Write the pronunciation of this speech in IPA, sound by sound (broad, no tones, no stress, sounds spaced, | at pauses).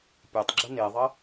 pʲ e tˤ ɡ͡ǁ ə n e ðˤ ə